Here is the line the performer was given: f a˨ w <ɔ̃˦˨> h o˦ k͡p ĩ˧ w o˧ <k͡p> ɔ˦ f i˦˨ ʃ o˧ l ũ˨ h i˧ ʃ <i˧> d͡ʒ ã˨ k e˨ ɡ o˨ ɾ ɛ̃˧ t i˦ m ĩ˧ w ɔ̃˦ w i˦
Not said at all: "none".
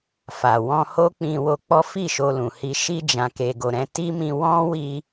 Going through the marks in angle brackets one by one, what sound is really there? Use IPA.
ɔ̃˧, k͡p, i˧

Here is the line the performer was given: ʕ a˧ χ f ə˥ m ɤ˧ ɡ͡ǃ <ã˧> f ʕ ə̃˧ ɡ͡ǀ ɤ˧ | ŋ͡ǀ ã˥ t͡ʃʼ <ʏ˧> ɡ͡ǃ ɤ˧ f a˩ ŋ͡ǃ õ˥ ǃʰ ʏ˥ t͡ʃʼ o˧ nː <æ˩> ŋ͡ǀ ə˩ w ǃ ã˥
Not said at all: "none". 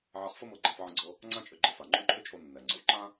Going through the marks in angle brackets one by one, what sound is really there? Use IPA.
ã˧, ʏ˧, ɛ˩

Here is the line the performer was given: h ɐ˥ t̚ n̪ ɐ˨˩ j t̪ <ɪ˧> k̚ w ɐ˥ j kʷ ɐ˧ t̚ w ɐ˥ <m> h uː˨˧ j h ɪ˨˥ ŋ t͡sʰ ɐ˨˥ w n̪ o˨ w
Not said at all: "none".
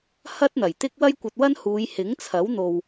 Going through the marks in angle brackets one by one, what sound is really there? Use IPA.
ɪ˥, n

